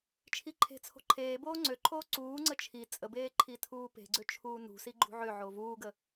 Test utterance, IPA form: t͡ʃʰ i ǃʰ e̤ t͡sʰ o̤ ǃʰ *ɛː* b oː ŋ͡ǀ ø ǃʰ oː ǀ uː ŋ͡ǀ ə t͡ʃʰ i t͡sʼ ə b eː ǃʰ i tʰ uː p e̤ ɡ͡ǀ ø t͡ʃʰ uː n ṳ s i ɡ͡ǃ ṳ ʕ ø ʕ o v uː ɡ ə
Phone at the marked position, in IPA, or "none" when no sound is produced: eː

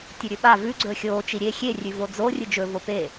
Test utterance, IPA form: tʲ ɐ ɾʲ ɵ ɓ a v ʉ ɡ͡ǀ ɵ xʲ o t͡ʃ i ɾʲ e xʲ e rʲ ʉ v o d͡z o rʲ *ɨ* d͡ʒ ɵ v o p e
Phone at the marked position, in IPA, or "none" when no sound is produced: ɨ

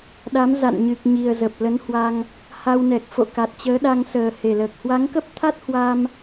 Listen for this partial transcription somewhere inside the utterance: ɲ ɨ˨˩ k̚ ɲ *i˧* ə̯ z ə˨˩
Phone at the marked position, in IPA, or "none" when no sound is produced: i˨˩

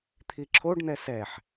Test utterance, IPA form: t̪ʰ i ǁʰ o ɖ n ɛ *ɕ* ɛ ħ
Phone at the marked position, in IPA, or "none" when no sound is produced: s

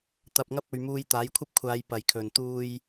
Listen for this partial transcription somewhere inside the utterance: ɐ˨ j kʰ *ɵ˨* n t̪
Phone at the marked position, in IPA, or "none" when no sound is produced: ɵ˨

